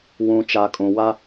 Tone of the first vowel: low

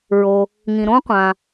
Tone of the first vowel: low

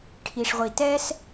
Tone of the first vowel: low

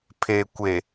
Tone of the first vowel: low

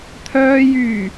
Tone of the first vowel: low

